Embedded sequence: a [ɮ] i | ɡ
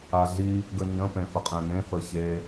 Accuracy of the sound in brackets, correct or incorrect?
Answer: correct